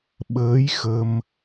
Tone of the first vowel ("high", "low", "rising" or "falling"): rising